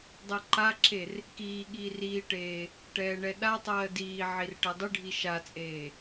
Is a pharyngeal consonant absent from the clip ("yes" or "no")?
no